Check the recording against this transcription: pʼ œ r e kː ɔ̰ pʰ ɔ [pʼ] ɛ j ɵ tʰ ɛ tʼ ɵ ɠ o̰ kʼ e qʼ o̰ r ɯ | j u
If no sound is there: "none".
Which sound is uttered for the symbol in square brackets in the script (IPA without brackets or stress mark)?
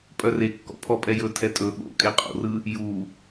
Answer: pʼ